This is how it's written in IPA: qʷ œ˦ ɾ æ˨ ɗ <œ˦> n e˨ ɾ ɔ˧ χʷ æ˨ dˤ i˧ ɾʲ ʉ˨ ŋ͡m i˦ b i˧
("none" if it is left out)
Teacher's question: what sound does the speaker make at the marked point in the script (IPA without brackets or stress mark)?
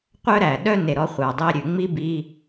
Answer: œ˦